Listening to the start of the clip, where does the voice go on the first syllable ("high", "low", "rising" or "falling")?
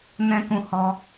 high